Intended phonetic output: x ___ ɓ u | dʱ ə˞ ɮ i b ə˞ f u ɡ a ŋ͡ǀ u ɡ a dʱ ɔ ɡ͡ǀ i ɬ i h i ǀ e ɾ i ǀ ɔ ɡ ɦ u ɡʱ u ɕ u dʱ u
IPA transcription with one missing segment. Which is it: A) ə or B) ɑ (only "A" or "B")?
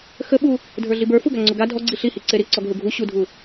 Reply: A